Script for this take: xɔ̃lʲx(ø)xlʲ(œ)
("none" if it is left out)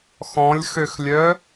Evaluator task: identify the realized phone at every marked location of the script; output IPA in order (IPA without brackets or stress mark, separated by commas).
ø, œ